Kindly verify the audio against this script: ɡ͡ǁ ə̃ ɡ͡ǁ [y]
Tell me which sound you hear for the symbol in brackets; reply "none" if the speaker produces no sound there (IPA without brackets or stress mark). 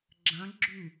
y